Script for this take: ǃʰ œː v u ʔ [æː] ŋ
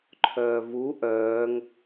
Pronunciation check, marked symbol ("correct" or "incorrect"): incorrect